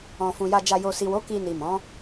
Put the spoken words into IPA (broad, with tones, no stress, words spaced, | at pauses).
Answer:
ɔ̃˨fũ˨ja˧d͡ʒa˧ jo˨si˨wo˨˦ ki˧ni˨mɔ̃˨˦